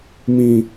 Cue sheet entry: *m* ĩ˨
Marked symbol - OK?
yes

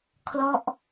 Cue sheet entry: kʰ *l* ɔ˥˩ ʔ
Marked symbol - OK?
yes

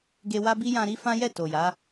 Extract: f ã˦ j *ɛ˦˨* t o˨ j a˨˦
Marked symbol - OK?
yes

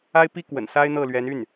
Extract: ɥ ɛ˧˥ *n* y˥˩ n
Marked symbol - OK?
yes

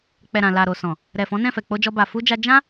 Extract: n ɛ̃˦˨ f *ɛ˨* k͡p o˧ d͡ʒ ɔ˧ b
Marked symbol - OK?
yes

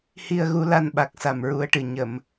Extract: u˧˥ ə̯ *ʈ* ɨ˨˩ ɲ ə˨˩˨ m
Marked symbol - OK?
yes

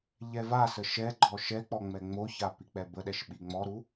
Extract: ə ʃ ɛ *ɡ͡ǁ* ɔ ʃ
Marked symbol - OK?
no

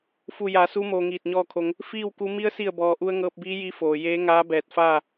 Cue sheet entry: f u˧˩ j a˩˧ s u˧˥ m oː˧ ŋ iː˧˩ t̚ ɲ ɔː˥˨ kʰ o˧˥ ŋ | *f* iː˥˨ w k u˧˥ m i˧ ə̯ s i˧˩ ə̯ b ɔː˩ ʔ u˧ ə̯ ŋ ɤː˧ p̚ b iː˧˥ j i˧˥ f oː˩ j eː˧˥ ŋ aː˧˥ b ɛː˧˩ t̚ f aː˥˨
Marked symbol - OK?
yes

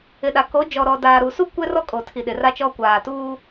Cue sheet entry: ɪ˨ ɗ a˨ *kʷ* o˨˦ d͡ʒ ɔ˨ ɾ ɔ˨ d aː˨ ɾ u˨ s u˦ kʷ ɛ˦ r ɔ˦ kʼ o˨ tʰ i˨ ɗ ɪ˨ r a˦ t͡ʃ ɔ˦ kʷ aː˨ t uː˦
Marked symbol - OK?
no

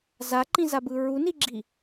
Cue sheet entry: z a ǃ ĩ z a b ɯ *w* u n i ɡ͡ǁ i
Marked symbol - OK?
no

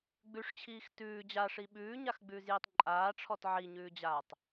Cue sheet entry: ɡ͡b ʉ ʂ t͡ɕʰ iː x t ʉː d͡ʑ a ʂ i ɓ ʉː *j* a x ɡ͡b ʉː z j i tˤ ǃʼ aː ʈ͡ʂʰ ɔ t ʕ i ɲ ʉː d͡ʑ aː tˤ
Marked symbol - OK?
no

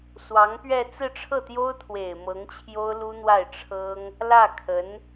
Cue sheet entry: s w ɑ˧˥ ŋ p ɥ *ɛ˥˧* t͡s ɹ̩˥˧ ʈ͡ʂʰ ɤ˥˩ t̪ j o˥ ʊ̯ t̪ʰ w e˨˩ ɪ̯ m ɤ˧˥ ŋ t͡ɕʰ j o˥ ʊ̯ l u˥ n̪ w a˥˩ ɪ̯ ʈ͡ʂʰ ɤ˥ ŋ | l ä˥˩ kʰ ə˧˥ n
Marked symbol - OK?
yes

